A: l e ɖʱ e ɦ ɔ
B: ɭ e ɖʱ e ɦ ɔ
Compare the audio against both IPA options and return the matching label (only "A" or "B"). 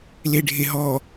A